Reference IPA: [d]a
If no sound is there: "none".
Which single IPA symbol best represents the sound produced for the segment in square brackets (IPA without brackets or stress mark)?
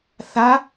θ